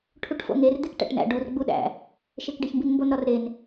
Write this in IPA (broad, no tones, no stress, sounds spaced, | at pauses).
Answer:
ʈʰ u ʈ f o̰ ŋ e r d̪ e k ʈ æ̰ ʈ n æ̰ ɖ u r ɡ͡b u ɗ æ̰ | ʃ e k ɖ e ç m b i n m b o n ɾ ɒ r ɾ e n